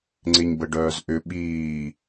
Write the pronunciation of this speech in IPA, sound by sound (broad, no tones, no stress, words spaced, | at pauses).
ŋ͡ǀɪɲbəɖœːzʔʏ ɓiː